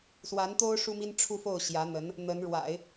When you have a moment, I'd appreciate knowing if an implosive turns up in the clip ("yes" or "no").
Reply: no